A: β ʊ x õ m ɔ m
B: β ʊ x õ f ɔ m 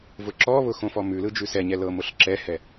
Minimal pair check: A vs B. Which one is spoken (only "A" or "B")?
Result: B